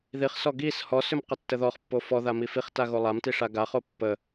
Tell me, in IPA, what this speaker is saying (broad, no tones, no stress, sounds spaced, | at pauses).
ð i χ s ɔ ɡ i s h ɔ s ʏ m q ə tː ə ð ɔ χ pː o f ɔ ð a m i f i χ t a ɣ o lˠ a m t i ʂ a ɡ a χ o pː ə